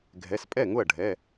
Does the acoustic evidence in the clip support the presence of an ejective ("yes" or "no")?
yes